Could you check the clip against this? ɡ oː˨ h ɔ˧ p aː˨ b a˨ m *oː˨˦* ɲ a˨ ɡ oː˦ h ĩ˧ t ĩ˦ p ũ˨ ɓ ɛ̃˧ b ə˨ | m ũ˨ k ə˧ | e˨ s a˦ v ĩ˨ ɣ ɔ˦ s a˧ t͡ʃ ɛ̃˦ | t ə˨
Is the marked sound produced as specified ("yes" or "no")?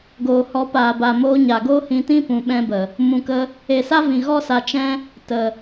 no